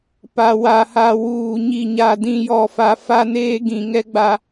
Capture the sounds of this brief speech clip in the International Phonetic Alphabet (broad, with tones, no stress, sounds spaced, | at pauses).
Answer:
p a˨ w a˨ h a˨ w uː˨ ɲ i˨ ɲ a˨ d ĩ˨ j ɔ˨ f a˨ f a˦ n eː˦ ɡ ĩ˨ ŋ ɛ˦ ɡ͡b a˦